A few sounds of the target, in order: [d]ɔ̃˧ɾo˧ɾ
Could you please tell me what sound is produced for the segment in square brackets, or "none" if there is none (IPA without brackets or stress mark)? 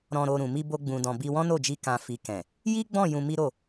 ɾ